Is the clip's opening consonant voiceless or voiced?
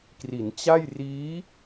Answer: voiceless